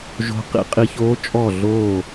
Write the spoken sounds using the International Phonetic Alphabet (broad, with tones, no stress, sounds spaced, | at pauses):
ʒ o̤˧˥ q ḭ˧ qʼ i˧ ç oː˧˥ t͡ʃʼ ɔ˧˩ ɮ oː˧˩